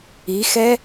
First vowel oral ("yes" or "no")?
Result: yes